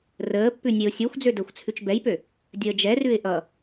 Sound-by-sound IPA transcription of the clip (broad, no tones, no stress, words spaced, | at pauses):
rəːpːʉ nʲeʊ̯sʲøxʷd͡zø dəːxʷt͡sʰʉt͡ʃbɛjpø | dʲəːd͡ʒɛrʉɪ̯ ʔʌ